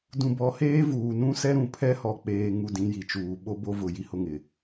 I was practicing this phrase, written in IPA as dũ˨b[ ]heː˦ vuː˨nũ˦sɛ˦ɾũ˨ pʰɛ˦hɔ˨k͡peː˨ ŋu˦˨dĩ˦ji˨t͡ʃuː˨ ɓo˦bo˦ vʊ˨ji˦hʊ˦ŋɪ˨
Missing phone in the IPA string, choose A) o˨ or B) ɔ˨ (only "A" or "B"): B